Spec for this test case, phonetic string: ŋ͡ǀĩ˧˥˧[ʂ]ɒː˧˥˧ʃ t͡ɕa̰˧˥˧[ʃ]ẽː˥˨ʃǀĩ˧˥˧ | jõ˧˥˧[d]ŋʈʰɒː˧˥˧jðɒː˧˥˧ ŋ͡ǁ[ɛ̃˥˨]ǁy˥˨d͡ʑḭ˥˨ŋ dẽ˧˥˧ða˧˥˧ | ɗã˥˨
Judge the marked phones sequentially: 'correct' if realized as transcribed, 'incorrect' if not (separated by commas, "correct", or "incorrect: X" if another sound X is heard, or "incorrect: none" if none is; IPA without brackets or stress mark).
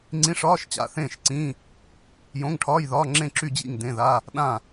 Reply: correct, incorrect: θ, incorrect: none, incorrect: ẽ˥˨